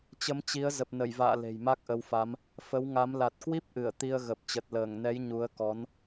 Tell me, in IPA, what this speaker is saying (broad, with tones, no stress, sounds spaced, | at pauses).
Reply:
t͡ɕ ə˨˦ m t͡ɕ i˨˦ ə̯ z ə˨˩ p̚ n ə˧˩ j v a̰ː˧˨ l e̤˨˩ j m a˦˥ k̚ ʔ ə˨˦ w f a˨˦ m | f ə˨˦ w ŋ a˨˦ m l a˨˩ t̚ k w i˦˥ p̚ ʔ ɨ˧˩ ə̯ t̪ i˧ ə̯ ɣ ə˨˩ p̚ t͡ɕ ə˨˩ t̚ l əː˧˩ ŋ n ɛ˨˦ j ɲ u˨˦ ə̯ k ɔ˨˦ n